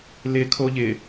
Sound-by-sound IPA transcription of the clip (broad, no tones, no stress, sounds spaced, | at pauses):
l ɪ kʰ o ʎ ɪ